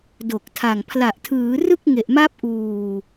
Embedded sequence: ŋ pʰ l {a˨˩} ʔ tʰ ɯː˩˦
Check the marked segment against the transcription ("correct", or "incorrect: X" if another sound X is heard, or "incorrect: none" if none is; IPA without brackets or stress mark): correct